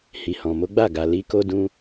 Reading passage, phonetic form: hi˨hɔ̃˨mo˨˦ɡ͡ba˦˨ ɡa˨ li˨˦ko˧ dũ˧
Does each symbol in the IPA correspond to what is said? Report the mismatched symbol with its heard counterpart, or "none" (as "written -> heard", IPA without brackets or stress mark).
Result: none